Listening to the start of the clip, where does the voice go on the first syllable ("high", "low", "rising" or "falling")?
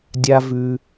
high